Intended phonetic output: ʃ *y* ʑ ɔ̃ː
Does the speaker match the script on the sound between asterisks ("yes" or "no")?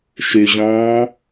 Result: yes